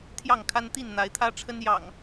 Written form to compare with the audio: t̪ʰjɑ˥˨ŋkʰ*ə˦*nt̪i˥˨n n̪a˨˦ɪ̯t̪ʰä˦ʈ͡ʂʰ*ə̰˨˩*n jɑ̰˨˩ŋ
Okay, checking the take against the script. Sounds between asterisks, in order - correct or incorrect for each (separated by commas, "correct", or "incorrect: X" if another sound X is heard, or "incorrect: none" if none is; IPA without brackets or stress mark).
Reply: incorrect: a˦, incorrect: ə˦